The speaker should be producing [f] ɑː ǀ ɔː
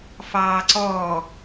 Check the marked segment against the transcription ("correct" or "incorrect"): correct